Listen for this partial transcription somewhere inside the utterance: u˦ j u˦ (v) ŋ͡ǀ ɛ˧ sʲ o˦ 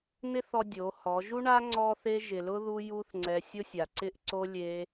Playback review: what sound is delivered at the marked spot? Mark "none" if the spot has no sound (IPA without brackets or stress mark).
θ